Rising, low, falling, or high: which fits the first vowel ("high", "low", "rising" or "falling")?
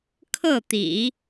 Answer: falling